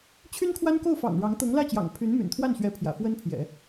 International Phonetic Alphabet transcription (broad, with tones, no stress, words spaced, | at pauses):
t͡ɕʰy˥nkʰwa˥n ko˥˩ʊ̯fɑ̰˨˩ŋ ɻɑ˧˥ŋ t̪ɤ˧˥ŋlä˥˩t͡ɕjɑ̰˨˩ŋ pʰy˧˥nmy̰˨˩nt̪ʰwa˥˩nɕɥɛ˧˥ pʰjä̰˨˩fwə˥npʰjɛ̰˨˩˦